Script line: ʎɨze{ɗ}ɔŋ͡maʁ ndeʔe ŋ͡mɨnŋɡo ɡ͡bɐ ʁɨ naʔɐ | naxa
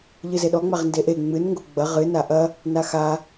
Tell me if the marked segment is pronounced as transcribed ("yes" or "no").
yes